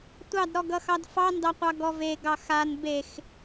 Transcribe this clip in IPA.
tʷ ɑ d ɾ ɔ ɡ ʌ x ɑ d f ɑ n d ɑ qʷ ɑ ɡ ɔ v e ɡ ɑ x a n b e x

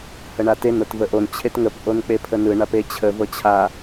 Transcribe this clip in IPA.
h ə ɳ a t e n ɤ t v ə ʔ o n t͡ɕʰ e t ŋ ə p ʔ o n k͡p e pʰ ə n ɯ ɳ a p e t͡ɕʰ ə v ɤ t͡ɕʰ a

